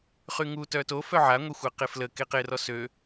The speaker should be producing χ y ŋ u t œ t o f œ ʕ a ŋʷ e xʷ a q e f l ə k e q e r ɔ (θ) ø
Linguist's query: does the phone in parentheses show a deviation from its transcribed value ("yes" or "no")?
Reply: yes